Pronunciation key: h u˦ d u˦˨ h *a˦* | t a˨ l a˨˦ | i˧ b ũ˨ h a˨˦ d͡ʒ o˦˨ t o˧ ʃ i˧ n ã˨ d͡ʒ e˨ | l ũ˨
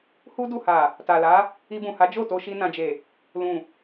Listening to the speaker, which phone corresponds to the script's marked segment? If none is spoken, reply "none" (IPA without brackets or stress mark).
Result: a˨